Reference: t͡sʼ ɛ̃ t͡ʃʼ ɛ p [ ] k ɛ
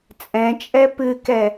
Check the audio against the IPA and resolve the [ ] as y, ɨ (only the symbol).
ɨ